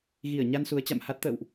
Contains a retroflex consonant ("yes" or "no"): no